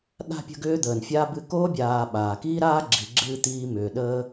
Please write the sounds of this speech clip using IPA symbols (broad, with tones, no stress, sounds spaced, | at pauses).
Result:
ɗ a̤˥ pʲ ə̤˦ ɡ ʏː˥ d̪ əː˩ n fʲ a˥ b ɨ˦ k oː˥ bʲ aː˨ ɓ aː˩ k iː˥ ɾ aː˥ ɡ͡ǁ i˩ ɡ͡ǁ ɨː˥ t̪ iː˦ m ʏː˩ ɗ əː˥